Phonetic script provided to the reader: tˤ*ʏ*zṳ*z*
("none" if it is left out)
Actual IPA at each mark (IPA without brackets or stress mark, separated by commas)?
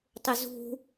ʏ, none